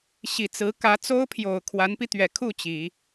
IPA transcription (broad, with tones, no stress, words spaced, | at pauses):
ɕi˨˩t͡sɹ̩˧˥ kä˧˥t͡so˥ʊ̯pʰjo˨˩ʊ̯ kʰwa˧˥npi˧t̪ɥɛ˨˩ kʰu˥˩ t͡ɕi˨˩˦